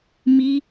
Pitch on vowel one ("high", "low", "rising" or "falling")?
high